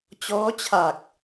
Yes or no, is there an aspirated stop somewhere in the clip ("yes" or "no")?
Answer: yes